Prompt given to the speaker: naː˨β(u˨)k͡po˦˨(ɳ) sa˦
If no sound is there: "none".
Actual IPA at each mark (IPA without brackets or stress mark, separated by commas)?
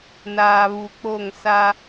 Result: u˨, ŋ